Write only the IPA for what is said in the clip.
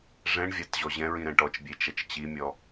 ʐɛ̃ɳvʲat ʑɔʑɛ̃ɹĩ ɾɛ̃ʈɔt͡ʃbʲe t͡ʃɐt͡ʃt͡ɕimʲɔ

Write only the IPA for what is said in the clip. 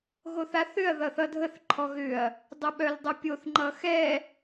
ɣoθaθʏɐ̯ ðʌθʌdʱəθ ǃʰɔɣʏɐ̯ | dˤoɓœldˤopʲoθ ŋ͡ǃʌxɛ

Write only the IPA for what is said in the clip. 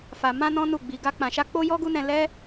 fa˧ mã˦nɔ̃˦nu˦˨ɡ͡bi˧ ɡa˦k͡pã˧ʃa˦ k͡po˦jɔ˦ɡu˦nɛ̃˧ lɛ˦

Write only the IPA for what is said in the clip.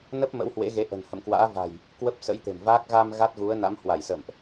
nə˦˥p̚ mə̰˧˥whwḛ˧˥ɣe˨˦ ʔə̤˨˩nhə̰˧˨mkwa̰ː˧˥ va̤˨˩j | kwə˦˥p̚sə̰˧˥j t̪e̤˨˩mvaː˦˥k̚ ɣa˧m ɣa˦˥t̚ɣu˨˦ə̯na̰˧˥mhwa˧˩j sə̰˧˨mʔ

